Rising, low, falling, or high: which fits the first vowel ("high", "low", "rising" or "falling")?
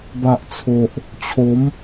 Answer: low